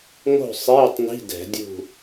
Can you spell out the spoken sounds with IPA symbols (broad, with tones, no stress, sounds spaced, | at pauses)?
ŋ o̤˥˨ sˤ eː˧˥˧ tˤ n i̤˧˥˧ d ɛ̤˧˩˧ dʲ ṳ˥˨